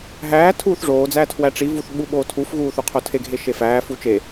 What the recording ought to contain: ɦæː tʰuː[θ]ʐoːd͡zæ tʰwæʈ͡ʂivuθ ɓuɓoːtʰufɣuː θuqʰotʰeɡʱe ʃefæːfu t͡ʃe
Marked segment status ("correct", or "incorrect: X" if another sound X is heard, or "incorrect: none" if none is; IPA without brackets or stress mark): correct